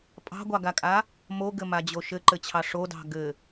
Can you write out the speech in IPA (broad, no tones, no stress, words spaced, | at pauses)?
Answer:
pʼɑ̤ɡʷɑɡakʼa | moɡɘmad͡ʑo ʃɘǃɘt͡ɕʰɑ ʂodɑ̤ ɡɘ